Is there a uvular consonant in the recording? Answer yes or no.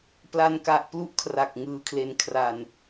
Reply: no